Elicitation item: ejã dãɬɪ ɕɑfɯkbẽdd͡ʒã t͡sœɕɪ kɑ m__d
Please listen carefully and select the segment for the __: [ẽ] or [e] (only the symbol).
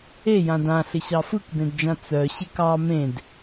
ẽ